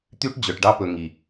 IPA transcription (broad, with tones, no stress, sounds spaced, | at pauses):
t̪ y˦ ʈ d͡ʑ œ˨ ʈ ɖ ɑ˦ p ɵ˨ ŋ i˨